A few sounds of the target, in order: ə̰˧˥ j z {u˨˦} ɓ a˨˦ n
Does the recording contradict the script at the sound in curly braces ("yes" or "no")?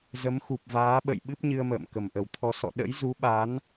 no